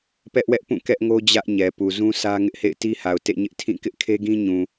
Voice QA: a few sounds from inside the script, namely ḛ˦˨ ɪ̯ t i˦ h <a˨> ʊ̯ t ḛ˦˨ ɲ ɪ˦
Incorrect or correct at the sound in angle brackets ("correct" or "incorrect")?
correct